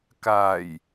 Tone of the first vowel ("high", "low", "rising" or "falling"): low